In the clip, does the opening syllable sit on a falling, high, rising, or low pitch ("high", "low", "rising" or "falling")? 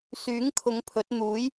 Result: rising